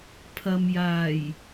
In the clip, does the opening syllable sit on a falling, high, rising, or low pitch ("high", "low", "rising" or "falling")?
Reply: low